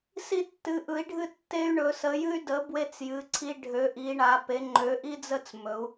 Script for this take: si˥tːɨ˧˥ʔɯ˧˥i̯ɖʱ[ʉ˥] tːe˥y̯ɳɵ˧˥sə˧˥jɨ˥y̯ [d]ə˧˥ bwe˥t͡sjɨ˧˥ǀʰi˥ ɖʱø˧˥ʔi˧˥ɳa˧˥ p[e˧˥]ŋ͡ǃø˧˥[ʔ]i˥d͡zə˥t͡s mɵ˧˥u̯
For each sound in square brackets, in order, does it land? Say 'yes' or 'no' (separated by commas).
no, yes, yes, yes